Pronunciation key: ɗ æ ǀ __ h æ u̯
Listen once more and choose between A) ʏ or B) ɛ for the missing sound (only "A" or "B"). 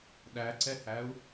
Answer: B